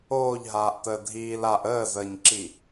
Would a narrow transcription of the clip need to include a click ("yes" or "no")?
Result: yes